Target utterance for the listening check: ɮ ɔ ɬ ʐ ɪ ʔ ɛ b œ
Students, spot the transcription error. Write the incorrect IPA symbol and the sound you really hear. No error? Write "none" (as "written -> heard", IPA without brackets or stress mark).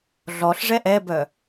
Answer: ɪ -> ɛ